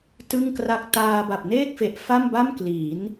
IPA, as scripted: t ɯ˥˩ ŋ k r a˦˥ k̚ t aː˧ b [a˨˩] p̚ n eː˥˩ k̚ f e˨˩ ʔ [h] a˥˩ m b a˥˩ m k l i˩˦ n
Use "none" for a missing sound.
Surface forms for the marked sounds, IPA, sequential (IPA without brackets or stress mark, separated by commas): a˨˩, f